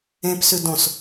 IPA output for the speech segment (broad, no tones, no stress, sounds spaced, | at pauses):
ẽ p s ʉ d õ s